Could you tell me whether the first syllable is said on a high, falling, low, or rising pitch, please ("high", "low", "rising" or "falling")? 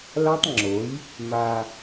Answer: high